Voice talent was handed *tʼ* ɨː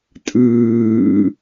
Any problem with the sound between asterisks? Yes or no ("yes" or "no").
no